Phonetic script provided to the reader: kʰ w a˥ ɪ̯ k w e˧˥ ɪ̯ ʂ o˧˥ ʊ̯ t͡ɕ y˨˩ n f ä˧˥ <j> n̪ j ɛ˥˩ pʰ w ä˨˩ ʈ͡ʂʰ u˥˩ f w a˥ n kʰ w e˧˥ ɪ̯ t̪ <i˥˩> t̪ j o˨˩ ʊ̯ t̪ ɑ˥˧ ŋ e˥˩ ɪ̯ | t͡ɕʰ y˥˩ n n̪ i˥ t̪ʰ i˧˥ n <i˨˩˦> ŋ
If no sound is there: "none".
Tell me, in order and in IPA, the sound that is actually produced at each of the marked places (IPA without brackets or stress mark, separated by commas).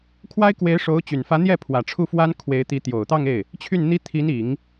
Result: none, i˧˥, i˨˩˦